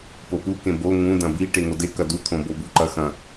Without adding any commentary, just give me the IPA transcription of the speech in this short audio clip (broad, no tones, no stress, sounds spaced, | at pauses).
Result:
p o p u k ẽ b o ŋ ũ d ɐ̃ b i ʈ e ŋ o d e k ɐ d u t̪ʰ õ b o b u ǃ ɐ x ɐ̃